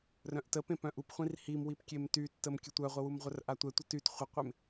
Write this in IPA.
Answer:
r œ̃ ʔ t ə p ẽ p œ̃ ʔ u p χʷ ĩ r h i m w i p kʲ e m t y tː ə m kʲ ə tʷ œ ʁʷ ə w u m ʁʷ œ r ʔ a tʷ ɛ tʷ ə t y t χʷ ə qʷ e m

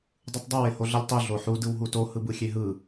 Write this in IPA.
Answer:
dˤ ɯ tˤ dˤ ɯ w e h o ɮ ʌ lʲ tˤ u ɮ o ħ u d ɯ w ɦ u t o h ɯ b ɯ xʲ e ɦ ɯ

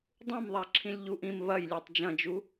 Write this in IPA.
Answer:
dˤ ũ m ðˤ a ǁʰ ĩ lʲ ʎ u ʔ ĩ m β ɐ j lʲ ɛ tˤ d͡ʒ ɐ̃ d͡ʒ u

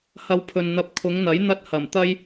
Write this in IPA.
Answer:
h ɐ˧ w pʰ ɵ˨ n n̪ ɐ˧ p̚ kʰ ʊ˨˧ ŋ n̪ ɐ˨˥ j n̪ ɐ˥ t̚ h ɐ˨˩ m t̪ ɐ˥ j

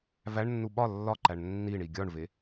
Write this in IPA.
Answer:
v æ ɳ nː u ɓ ɒ lː ɒ ǃ æ ɳ nː i ɳ i ɡʲ ɒ ɳ v e

